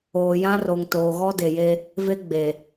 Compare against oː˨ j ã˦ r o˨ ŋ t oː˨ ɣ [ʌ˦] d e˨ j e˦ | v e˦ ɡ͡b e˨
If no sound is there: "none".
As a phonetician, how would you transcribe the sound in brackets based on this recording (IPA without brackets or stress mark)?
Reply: ɔ˦